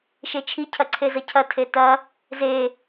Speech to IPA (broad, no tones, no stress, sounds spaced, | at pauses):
ʃ e t͡ʃʰ i cʰ ɐ ǀʰ e z ɐ cʰ ɐ tʰ e t ɐ | z e